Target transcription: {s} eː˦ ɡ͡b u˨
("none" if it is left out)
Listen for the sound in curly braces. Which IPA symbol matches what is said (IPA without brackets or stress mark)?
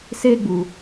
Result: s